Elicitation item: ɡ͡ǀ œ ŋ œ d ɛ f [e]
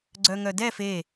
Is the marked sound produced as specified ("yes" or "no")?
yes